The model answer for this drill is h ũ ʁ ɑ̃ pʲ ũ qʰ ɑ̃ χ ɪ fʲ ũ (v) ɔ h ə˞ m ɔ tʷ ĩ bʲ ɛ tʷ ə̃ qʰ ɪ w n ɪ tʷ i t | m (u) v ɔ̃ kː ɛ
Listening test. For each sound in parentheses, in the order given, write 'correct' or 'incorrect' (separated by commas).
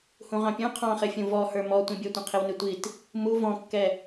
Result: correct, correct